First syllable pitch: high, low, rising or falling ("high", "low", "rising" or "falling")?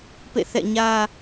falling